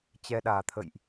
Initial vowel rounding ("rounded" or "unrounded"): unrounded